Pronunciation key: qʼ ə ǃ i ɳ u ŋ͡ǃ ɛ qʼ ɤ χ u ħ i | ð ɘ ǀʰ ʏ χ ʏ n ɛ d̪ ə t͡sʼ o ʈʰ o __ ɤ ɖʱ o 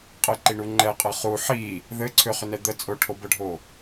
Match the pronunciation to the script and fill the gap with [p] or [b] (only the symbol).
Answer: b